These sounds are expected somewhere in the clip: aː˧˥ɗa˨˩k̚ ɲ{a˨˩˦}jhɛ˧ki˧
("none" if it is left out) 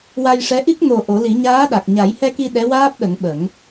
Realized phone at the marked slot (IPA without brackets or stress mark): a˨˩˦